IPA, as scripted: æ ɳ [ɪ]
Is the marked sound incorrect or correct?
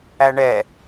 incorrect